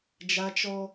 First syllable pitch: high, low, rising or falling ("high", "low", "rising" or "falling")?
high